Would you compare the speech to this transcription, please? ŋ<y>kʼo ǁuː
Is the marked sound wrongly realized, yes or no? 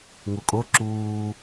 yes